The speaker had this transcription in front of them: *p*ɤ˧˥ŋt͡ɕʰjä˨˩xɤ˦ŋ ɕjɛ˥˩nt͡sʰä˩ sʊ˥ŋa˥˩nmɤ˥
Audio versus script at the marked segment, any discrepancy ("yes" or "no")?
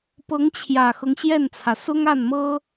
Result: no